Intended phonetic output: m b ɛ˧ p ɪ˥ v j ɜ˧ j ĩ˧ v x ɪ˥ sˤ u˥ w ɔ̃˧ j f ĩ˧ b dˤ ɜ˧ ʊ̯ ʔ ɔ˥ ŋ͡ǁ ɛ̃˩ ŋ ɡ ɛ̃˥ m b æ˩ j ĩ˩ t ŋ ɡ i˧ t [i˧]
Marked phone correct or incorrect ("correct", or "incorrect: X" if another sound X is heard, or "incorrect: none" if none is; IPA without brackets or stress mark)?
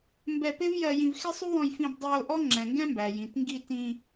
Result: incorrect: ĩ˧